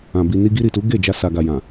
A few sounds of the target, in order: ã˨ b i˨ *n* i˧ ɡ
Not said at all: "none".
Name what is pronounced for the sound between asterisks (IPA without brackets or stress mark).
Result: n